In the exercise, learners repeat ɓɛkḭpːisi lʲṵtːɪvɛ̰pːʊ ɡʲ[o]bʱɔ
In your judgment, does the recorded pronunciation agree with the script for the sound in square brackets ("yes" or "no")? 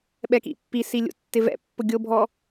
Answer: yes